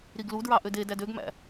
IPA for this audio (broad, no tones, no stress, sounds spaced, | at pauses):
ɾ i ɡ l u d ɹ ɑ ʔ ø d e d æ d ø ɡ m æ̰